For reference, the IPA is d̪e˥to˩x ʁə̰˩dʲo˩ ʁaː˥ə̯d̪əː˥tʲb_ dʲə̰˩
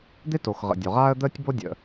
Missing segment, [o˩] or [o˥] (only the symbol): o˥